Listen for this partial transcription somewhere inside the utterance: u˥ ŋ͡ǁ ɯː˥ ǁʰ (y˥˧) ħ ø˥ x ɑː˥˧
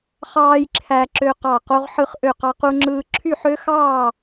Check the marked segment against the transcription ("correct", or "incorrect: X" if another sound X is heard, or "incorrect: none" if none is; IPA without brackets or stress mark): correct